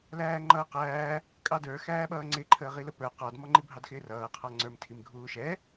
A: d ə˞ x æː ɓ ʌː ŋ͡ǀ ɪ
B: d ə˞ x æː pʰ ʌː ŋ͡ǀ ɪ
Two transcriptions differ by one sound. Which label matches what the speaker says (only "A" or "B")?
A